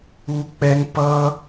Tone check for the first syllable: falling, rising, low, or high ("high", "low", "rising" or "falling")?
high